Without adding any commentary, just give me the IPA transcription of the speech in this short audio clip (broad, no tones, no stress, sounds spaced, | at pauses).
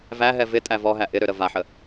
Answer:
v æ ɦ ɛ v ɪ tʼ æ v ɔ ɦ æ ʔ ɪ ɾ ø ɾ ə v a ħ ə